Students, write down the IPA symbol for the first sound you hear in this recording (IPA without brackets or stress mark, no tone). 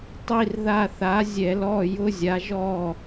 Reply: tˤ